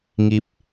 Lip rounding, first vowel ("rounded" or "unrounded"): unrounded